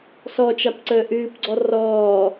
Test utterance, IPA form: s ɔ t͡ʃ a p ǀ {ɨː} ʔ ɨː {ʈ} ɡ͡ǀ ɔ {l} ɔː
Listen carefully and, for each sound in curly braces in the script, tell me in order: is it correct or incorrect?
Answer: incorrect: əː, incorrect: p, incorrect: r

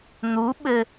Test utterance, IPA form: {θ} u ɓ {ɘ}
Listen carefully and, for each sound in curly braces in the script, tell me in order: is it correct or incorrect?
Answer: incorrect: n̪, correct

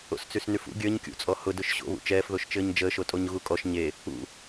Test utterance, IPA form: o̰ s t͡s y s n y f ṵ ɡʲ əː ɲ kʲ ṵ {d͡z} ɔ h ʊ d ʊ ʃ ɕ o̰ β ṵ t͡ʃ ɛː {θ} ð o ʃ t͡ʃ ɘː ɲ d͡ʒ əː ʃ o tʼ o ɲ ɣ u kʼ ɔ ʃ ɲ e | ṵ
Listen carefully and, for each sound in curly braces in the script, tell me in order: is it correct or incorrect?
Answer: incorrect: t͡sʼ, incorrect: f

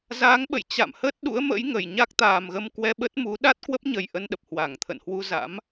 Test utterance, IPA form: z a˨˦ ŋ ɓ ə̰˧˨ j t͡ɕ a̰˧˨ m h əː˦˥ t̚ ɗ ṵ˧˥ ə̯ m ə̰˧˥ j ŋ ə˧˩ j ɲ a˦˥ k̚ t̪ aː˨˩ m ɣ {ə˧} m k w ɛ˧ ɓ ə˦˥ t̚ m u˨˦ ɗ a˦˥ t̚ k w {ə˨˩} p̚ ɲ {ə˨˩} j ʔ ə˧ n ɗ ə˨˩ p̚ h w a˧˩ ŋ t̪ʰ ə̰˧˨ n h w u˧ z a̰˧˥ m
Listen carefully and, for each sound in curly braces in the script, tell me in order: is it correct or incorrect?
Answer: correct, incorrect: ə˦˥, correct

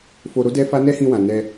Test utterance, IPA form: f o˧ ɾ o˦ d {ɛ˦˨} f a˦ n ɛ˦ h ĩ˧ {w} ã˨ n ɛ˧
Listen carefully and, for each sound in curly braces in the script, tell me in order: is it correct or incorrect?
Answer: incorrect: ɛ˦, correct

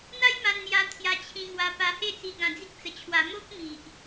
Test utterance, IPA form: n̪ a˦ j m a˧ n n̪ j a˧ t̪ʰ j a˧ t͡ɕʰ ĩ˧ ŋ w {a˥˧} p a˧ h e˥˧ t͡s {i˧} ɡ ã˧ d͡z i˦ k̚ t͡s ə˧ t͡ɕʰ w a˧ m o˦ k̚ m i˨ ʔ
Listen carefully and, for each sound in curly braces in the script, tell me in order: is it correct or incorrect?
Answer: incorrect: a˧, correct

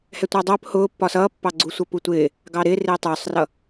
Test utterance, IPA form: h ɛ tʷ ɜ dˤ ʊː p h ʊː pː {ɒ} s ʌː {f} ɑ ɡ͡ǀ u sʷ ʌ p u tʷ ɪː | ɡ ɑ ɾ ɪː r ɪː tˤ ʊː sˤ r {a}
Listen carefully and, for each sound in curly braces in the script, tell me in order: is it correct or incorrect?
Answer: correct, incorrect: pː, incorrect: ʌ

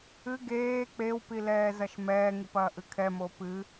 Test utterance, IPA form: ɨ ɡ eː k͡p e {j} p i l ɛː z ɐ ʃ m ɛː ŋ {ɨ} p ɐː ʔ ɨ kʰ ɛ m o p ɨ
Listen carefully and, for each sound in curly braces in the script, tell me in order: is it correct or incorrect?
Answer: incorrect: w, correct

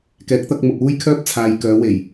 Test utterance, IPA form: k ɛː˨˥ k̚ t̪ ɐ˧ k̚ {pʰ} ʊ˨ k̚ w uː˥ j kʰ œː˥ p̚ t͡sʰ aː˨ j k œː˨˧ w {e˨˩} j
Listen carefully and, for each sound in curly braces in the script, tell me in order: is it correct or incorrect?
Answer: incorrect: m, correct

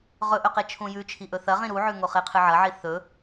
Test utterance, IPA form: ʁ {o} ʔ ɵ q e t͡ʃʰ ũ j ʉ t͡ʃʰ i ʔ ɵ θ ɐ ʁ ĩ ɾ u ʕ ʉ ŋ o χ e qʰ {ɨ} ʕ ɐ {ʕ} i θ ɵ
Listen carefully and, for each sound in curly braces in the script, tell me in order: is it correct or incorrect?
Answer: incorrect: ɵ, correct, correct

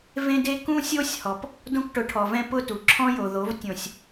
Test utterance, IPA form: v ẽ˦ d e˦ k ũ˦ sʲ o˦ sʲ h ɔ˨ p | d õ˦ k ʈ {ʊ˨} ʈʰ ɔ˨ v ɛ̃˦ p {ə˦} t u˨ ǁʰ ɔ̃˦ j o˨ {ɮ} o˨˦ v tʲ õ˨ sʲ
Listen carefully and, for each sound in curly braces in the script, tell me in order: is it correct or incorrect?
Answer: incorrect: ʊ˨˦, incorrect: ʊ˦, incorrect: ð

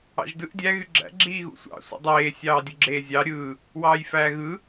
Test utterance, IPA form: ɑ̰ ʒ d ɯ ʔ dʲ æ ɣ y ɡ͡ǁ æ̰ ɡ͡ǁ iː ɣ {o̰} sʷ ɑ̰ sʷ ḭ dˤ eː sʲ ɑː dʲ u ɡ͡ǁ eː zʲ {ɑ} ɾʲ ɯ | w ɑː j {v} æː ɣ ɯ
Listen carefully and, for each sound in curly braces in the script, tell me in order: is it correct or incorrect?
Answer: incorrect: ṵ, correct, incorrect: f

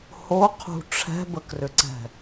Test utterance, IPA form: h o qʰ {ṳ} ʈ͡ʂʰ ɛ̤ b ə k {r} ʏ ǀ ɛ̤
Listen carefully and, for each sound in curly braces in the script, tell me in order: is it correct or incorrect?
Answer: correct, correct

